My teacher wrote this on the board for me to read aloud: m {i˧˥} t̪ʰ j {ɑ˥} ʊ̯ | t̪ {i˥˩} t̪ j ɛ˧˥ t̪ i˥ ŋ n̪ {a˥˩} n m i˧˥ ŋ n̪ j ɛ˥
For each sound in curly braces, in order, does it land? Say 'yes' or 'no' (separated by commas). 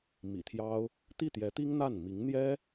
no, yes, yes, yes